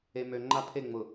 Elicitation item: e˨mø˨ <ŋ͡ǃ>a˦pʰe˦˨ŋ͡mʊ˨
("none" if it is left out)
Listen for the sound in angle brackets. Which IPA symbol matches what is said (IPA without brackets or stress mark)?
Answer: ŋ͡ǃ